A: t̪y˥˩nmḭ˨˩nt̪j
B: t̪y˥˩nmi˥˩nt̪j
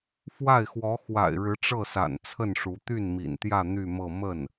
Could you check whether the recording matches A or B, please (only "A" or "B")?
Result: A